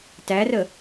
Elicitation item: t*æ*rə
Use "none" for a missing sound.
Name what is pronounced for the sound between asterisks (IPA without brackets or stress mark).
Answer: æ